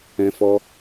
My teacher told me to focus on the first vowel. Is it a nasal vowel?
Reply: yes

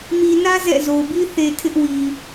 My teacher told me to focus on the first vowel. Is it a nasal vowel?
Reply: no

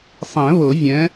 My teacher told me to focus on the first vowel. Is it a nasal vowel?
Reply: yes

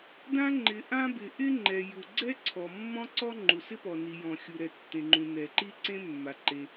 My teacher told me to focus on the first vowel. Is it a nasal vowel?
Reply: yes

